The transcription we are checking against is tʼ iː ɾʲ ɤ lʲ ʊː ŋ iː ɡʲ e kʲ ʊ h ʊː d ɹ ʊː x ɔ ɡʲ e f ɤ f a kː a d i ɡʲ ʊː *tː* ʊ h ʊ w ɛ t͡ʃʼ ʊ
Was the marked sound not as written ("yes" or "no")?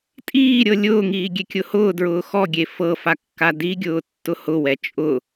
no